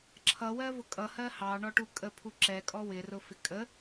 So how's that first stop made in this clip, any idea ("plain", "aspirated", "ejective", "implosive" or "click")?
click